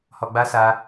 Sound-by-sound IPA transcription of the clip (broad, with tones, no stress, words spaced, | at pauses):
hɔ˧ɡ͡ba˦sa˧